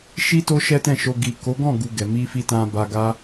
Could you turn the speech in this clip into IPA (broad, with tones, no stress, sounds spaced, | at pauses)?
ʃ i˦ t o˦ ʃ ɛ˦ t ɛ̃˦˨ ʃ o˧ ɡ i˨ k o˨˦ ɡ ɔ̃˦˨ ɡ u˨ ɡ ɛ˨ m i˧ f i˧ t ã˧ b a˧ ɡ a˦